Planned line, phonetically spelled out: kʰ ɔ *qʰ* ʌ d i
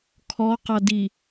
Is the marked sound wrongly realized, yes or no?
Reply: yes